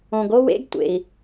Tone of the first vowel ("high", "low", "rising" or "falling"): low